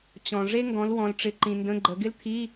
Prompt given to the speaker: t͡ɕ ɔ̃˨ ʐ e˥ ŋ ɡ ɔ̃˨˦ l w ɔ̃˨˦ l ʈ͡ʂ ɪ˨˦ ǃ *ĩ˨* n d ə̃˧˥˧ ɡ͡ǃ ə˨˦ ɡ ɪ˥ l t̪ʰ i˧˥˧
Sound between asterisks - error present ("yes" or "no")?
no